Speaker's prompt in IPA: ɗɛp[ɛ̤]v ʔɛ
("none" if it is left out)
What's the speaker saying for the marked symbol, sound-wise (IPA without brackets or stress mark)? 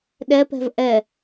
ɛ̤